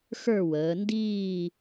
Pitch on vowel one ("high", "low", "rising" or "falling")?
falling